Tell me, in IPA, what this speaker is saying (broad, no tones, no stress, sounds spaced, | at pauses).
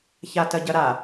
ç a t ɐ ɟ ɐ ɾ a